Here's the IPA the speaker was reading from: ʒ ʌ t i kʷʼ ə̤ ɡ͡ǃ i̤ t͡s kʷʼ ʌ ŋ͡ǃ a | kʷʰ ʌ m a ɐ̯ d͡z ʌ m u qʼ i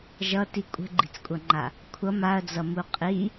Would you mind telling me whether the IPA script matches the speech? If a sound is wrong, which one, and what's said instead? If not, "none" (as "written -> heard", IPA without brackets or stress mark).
none